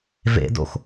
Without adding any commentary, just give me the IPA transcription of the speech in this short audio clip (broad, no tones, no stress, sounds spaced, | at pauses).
v ḛ d o̰ x